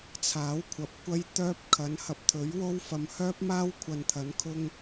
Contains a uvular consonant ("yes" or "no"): no